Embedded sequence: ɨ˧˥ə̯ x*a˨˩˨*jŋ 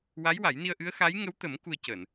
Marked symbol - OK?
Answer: no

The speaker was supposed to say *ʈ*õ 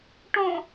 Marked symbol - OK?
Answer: yes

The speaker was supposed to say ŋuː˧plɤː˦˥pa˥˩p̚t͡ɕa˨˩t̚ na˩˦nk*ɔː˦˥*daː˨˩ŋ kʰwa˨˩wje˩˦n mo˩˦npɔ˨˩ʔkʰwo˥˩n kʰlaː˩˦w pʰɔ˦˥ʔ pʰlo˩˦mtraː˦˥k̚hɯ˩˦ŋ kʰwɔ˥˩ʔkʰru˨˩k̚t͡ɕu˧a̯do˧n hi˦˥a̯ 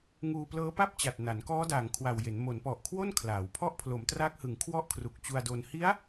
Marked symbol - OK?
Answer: yes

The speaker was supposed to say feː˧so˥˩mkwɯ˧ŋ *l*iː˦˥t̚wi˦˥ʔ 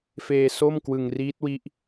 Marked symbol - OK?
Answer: no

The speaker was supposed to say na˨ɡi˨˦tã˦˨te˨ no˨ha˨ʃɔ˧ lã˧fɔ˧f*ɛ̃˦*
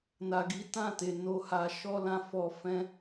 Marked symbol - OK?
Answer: yes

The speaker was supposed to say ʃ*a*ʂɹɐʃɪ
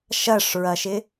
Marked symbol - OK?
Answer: no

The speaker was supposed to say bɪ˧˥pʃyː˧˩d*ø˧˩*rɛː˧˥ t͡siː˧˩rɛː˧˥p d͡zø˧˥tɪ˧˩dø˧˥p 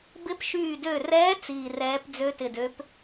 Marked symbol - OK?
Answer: yes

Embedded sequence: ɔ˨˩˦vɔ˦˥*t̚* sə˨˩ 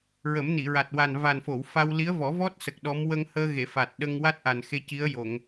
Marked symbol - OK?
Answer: yes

